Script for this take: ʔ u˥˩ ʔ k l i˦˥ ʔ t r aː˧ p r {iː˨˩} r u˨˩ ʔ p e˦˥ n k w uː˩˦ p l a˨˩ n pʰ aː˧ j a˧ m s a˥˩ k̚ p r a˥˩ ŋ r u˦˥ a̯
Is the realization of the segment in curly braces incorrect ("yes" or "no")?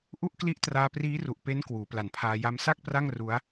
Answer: yes